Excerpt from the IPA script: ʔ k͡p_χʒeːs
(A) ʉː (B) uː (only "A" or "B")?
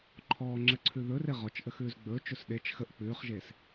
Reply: A